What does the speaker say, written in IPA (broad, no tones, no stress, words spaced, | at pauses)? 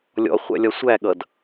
lʲɔ̰ χʷæ̰lʲɒsʷæɠʌd